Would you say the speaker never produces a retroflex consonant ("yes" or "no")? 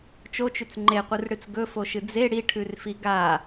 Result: no